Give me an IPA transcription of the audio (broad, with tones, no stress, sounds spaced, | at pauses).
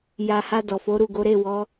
j a˨ h a˧ d ɔ˨ f o˨˦ ɾ u˦˨ ɡ o˨˦ ɾ e˦˨ w ɔ˨˦